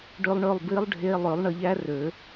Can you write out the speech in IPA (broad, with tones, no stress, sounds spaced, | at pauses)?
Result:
ɖ ø˨ lˠ ɳ ø˦˨ lˠ b i˦˥ lˠ ɖʱ e˧˥˧ lˠ ø˨˩˦ lˠ ɳ ʌ˨ ʎ æ˦˥ r ø˨˩˦